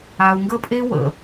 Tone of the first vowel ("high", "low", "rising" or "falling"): low